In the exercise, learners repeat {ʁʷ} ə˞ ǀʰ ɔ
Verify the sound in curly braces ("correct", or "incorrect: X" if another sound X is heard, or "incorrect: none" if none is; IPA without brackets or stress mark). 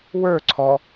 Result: incorrect: w